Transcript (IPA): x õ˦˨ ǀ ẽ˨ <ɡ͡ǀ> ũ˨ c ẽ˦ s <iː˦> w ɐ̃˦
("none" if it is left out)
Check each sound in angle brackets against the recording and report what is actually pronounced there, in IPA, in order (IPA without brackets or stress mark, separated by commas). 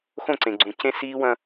ɡ͡ǀ, iː˦